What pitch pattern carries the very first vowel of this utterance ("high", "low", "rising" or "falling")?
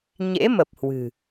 rising